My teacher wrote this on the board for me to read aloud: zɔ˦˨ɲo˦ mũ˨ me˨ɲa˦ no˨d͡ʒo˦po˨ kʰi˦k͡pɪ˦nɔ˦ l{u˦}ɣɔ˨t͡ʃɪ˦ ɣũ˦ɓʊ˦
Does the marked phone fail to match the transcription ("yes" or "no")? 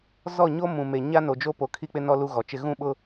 no